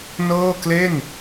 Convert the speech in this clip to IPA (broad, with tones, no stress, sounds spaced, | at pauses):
n ɤː˥˩ k l e˥˩ n